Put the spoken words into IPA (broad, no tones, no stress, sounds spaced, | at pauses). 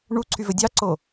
ɳ u ǀʰ y v ɘ dʲ ɑ ǀ o